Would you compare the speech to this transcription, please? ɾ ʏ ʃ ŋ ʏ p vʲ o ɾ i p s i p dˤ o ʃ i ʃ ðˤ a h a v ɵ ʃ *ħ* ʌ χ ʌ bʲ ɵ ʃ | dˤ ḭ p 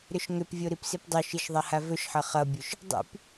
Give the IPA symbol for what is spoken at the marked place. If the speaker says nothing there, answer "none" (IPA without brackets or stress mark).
ħ